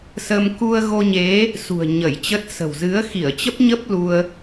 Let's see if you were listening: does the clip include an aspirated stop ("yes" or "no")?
no